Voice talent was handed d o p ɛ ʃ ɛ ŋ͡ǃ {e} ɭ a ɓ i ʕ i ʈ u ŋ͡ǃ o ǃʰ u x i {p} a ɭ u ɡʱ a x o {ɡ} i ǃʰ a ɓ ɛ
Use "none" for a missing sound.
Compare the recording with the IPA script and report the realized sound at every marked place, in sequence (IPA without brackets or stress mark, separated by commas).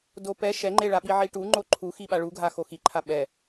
e, ɓ, x